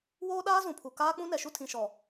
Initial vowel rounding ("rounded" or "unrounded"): rounded